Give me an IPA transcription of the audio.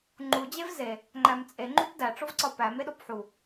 ŋ͡ǃ u d͡ʑ e v z e | ŋ͡ǃ æ m t͡sʼ e ŋ͡ǃ u p d æ ʈ͡ʂ o v ǀ ɒ p æ m e ɗ o p ħ u

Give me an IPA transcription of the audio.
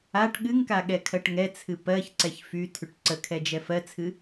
a ʈ ɠ ɨ ŋ k a ɠ ɛ kʰ ɜ ʈ ŋ ɛ t͡sʰ ɨ p ɜ ç ǀ ɛ ç f y tʰ y ʈ ǀ ə kʰ ɛ d͡ʒ ɛ f ɜ t͡sʰ ɨ

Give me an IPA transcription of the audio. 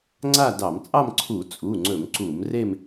ŋ͡ǀ a˥˧ d ɑ˧˩˧ m t͡sʼ ɑ˥˧ m ǀʰ u˧˩˧ t͡sʼ u˩˧˩ ŋ͡ǀ ɵ˧˩˧ m ǀ u˧˩˧ m r e˥˧ m

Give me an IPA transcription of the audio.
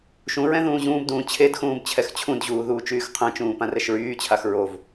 ʃ ũ ɹ ɛ̃ ð ũː ʑ ũː b d ũː t͡ɕʰ e d x ũː b t͡ɕʰ ɛ x t͡ɕʰ ũ d ʑ uː ð uː t͡ʃ yː x qʰ ɛ̃ t͡ʃ ũː p ã r ɛ ʃ ɹ yː t͡ɕʰ a x ɹ o v

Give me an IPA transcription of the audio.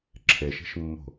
ǁʰ e ʃ i̤ ʃ mː o̤

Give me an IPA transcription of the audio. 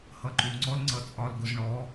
h ʌ ǃ u ŋ͡ǀ ɔ l ŋ͡ǀ ʌ t͡sʼ ɒ l ɡ ʊ z ɳ ɔ

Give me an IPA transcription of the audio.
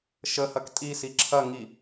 ʃ ə h ɐ k tʼ i s i ǁʰ ɐ ŋ i

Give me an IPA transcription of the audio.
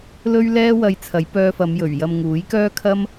l ɵ˥ ɥ l ɛː˥ w ɐ˧ j t͡sʰ ɐ˨˥ j p œː˧ f ɐ˨˧ m j ɵ˨˩ ɥ j ɐ˨ m ŋ uː˨˥ j k œː˥ kʰ ɐ˥ m

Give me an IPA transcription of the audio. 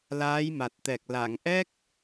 l aː˧˥ j m a˨˩ t̚ t̪ ɛ˨˩ k̚ l a˨˩˨ ŋ ʔ ɛ˦˥ k̚

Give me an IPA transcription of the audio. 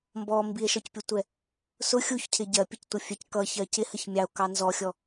m b ɔ m b i e̯ ʃ ɔ c pʲ ʊ tʷ ɛ | s ʊ xʲ u ç cʰ ɪ ɟ ɜ pʲ ə c tʷ ʌ fʲ ɛ c k ʌ ç ɜ c ɪ h ə ç mʲ ɑ o̯ k ɑ n z ɔ xʲ ɔ

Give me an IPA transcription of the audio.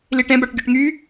l i ʈ ɛ̃ b a ʈ ɡʲ o ʈ ŋ y

